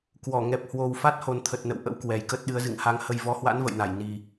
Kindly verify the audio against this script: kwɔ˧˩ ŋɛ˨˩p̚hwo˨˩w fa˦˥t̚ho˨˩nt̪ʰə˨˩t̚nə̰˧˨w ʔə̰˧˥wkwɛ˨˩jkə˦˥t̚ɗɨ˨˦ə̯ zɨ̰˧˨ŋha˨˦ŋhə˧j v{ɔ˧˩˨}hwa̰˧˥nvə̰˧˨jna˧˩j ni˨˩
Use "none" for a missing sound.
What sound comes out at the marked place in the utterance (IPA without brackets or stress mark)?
ɔ˨˦